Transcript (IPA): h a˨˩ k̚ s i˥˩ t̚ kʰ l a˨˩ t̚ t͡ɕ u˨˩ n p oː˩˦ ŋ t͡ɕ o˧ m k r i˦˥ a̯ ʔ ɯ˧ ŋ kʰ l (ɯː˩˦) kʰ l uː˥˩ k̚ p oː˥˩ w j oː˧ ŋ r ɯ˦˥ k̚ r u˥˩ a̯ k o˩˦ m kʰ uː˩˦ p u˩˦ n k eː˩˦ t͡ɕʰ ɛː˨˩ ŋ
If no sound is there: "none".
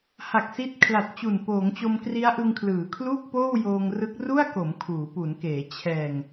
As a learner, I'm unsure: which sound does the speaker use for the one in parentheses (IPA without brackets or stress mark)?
ɯː˩˦